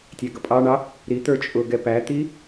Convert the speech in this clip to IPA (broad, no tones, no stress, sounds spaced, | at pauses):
tʲ æ ɡ ʌ pʼ ɑ ɳ ɑ | ɾ i t̪ ə˞ t͡ʃʼ ʊ ɡ ɛ p æ t̪ i